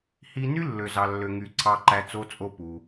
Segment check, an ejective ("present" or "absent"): present